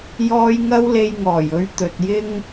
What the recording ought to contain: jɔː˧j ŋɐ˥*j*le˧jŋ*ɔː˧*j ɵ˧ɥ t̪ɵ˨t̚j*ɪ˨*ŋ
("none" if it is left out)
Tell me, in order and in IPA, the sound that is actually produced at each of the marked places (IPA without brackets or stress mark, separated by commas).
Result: w, ɔː˨˩, ɪ˥